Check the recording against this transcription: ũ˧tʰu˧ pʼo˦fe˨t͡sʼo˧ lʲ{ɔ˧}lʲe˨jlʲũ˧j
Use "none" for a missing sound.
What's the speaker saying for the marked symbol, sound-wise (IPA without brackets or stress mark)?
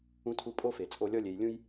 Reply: ɔ˧